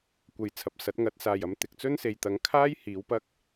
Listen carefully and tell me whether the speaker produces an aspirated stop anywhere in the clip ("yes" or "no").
yes